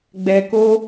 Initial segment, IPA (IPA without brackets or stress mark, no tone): ɡ͡b